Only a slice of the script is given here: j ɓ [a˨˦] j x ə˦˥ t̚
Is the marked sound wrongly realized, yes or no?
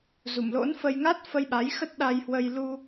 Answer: no